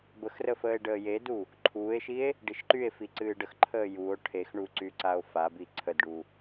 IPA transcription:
bəxrə fəːe̯ɖəːjedu | ǃʰuːe̯ʃie̯ | ɖiʃǃye̯fi ǀɨːɖəxǃʰəː juo̯ ʈʰexɳu ǀyǀao̯fabi ǀʰədɖu

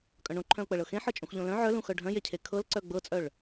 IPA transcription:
kʼœ̃ɳõǃʰœ̃ʊ̯k͡pɤɭ ɤxẽħɤ t͡ʃʼũxʎõlœ̃ ʕœlũxœ ɖʱœ̃jecʰe kʰɤlǀœ ɡ͡bɤt͡sʼœɭ

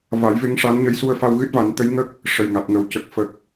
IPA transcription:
va˨˩˦jve˧˥ŋʂa˧˥nɲə˧˥j su˧ə̯fa˧wɣɨ˦˥t̚ va˨˩˦nt̪ə˧˥jŋə˦˥k̚ | ʂə˨˩jŋa˨˩t̚ŋə˨˩w cə˨˩k̚ fə˨˩k̚

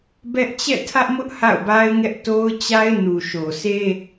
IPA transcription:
bɛ˦ʔ t͡ɕɛ̰˦˨tʰä˦ʔmʊ˦ʔ ha̰˦˨ʊ̯ba˦ɪ̯ŋɛ˦ʔ to˦ʊ̯t͡ɕa˦ɪ̯ nu˨ʃo˨sʰe˦

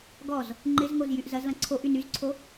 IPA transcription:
ɡɔz | ŋ͡ǃɪzŋoz jyʔzɐzlɐ̃ ǀʰoʔ ynyzǀʰo

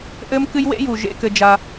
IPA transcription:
ʔɘ˦mkɨ˦jwḛ˦ju˨ ʒḛ˦kɘ˦d͡ʒa˦

